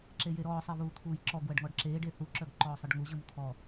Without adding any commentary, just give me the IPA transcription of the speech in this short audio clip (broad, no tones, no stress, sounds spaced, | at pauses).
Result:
ǁ e j e ɾ ɔː sˤ e β uː t̪ʰ uː j ǁ ɔ ɡ w ɜ ɖ ŋ ɔ ɖ ǁ eː ɖ e θ u ǁ œ ɡ ǃ ɔː sˤ ɯ ɖ ŋ u ʑ ɯ m t̪ʰ ɔ